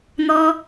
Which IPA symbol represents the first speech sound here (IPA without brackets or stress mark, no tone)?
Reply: n̪